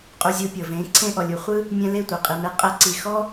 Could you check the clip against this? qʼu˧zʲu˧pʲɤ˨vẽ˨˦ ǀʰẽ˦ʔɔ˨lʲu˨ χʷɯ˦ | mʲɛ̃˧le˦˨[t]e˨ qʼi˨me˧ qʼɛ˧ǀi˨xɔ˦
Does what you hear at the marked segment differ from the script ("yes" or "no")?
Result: yes